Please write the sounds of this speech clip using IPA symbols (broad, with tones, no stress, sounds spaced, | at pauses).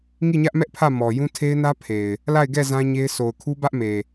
ŋ i˦˨ ɲ ä˦ ʔ m ɛ˦ ʔ pʰ ä˦˨ m ɔ˨ j ũ˦ tʰ e˦ ɪ̯ n ä˦ pʰ e˨ ɪ̯ | l a˦˨ ɪ̯ ɡ ɛ˦˨ z ã˦ ɲ e˦ ɪ̯ sʰ o˨ ʊ̯ kʰ u˦ b ä˦ ʔ m e˨